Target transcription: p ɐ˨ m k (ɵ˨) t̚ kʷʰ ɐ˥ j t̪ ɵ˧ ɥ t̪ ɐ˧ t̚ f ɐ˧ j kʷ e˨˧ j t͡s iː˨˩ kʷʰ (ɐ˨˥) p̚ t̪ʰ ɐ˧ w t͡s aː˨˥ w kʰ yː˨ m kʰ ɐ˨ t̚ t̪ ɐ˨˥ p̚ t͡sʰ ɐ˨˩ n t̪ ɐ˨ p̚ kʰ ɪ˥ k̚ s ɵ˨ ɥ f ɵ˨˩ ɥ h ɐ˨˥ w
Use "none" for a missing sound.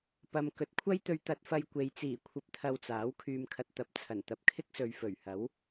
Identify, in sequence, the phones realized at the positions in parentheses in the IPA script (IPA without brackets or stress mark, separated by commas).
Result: ɵ˨, ɐ˧